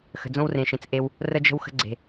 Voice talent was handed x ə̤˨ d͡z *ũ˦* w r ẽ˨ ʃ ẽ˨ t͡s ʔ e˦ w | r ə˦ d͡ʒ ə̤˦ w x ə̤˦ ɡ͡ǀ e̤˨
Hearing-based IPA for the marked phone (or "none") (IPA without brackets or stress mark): õ˦